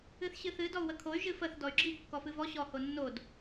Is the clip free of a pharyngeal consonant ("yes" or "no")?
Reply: yes